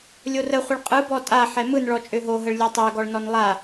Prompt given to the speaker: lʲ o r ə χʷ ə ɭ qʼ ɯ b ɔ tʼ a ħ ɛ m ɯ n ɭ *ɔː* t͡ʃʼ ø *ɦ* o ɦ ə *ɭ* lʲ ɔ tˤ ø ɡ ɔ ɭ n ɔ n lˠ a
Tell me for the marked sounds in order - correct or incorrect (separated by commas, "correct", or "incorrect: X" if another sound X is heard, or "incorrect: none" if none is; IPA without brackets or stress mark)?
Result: incorrect: ɔ, correct, correct